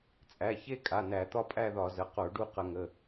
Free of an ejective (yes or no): no